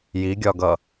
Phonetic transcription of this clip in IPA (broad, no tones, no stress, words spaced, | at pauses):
jiɡʲɒɡʌ